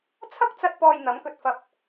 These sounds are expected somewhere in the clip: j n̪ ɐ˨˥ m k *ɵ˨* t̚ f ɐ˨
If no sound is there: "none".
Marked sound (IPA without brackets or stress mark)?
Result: ɵ˨